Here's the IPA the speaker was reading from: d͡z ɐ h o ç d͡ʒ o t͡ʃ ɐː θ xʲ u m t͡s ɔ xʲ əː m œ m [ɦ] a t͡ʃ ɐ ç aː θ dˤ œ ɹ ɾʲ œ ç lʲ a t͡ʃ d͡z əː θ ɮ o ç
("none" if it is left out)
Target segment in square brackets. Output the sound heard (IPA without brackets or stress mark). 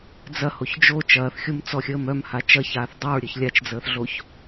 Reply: h